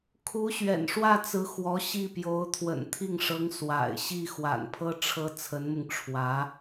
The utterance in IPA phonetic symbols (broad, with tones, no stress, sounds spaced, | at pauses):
kʰ u˧˥ ɕ ɥ ɛ̰˨˩ n ʂ w ä˥˩ t͡s ɹ̩˧˥ x w ɔ˧˥ ɕ i˥˩ p j o˧˥ ʊ̯ t̪ʰ w ə̰˨˩ n t̪ʰ i˥˩ ŋ ʂ ɤ˧˥ ŋ s w a̰˨˩ ɪ̯ ɕ i˥˩ x w a̰˨˩ n pʰ ɤ˥ ʈ͡ʂʰ ɤ˥ t͡sʰ ə˧˥ n m ʊ˧ ŋ ʈ͡ʂʰ w ä˧˥